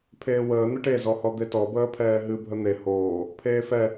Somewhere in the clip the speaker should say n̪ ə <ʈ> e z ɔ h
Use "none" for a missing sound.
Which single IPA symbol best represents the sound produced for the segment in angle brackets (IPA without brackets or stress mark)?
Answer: ʈ